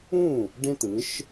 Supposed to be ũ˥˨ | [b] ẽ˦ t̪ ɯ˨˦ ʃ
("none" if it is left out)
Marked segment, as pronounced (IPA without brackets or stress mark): ɖ